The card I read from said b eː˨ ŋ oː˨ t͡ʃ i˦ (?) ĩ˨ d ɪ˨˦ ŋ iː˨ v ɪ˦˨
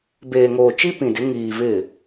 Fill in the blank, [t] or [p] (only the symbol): p